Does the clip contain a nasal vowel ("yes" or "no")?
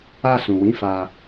yes